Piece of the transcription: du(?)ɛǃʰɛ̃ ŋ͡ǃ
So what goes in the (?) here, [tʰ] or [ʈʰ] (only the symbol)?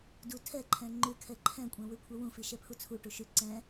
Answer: tʰ